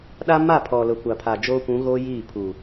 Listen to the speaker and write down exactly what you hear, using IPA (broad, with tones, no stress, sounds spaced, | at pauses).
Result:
ɗ a˦ m a˦˨ pʰ ɔ˨ l ʊ˨ kʷ a˨ pʰ a˨ d͡ʒ oː˦ kʷ ũ˨˦ ɣ oː˦ j iː˦˨ pʰ uː˨